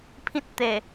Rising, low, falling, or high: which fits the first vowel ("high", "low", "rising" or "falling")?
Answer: high